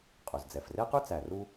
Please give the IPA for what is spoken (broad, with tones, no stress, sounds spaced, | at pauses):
qʼ ɵ˩ z d͡z ɛ˩ f r e˥ q ʉ˥ t͡s æ˩ r u˧